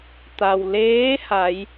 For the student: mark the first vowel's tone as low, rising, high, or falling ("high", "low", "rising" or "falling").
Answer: low